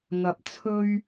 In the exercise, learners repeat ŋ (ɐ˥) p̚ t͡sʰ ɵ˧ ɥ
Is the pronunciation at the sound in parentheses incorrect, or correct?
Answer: incorrect